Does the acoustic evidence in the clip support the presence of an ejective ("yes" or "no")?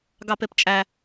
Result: yes